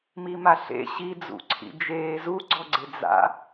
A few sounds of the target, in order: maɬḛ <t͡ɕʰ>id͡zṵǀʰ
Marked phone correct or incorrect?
incorrect